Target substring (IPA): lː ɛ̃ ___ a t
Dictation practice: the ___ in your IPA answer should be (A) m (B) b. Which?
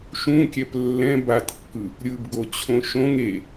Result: B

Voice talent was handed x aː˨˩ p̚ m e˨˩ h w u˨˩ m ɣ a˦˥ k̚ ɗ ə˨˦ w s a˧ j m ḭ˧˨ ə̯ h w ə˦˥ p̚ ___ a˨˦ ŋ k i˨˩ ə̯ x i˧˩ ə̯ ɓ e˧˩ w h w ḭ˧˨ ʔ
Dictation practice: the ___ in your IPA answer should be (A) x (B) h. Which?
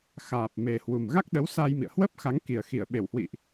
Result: A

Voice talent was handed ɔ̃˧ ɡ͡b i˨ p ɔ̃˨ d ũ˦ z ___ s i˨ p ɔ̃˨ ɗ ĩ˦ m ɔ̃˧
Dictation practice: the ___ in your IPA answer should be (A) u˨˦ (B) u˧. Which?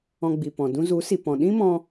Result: A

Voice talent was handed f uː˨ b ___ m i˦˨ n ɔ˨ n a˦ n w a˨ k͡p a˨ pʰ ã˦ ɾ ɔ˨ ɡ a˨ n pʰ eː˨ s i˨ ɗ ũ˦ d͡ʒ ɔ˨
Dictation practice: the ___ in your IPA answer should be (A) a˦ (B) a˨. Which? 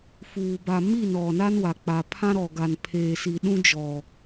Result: B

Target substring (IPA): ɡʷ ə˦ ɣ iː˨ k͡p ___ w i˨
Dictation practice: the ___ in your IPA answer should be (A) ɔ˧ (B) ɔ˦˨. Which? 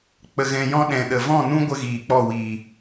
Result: B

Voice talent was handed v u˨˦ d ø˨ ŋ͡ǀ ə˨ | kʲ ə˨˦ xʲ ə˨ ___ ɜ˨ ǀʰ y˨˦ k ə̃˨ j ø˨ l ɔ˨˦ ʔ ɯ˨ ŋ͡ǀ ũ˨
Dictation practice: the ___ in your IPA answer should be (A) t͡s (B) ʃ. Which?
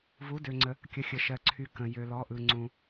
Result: B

